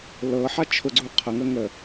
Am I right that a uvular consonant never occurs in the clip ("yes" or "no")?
no